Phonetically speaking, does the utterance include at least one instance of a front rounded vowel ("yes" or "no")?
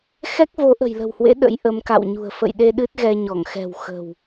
no